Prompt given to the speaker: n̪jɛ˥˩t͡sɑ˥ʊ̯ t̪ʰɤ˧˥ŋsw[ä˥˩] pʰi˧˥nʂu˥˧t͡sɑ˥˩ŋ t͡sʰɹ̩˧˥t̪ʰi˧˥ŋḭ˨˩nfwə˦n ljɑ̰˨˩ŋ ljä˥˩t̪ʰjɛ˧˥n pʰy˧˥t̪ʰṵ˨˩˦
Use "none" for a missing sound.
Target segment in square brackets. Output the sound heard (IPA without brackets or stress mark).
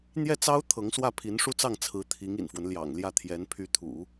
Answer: ä˥˩